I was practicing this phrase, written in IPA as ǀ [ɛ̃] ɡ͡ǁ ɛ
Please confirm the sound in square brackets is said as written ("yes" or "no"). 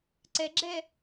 no